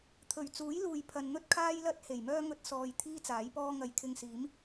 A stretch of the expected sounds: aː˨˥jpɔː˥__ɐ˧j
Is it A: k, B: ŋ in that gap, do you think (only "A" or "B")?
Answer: B